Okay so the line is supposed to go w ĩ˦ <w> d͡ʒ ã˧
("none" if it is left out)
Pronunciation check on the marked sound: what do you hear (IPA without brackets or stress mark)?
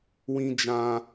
none